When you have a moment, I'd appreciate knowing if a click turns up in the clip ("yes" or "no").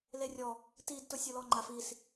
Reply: yes